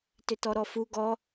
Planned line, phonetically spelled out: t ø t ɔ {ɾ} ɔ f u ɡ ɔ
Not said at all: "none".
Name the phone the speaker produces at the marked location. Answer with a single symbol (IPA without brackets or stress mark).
ɾ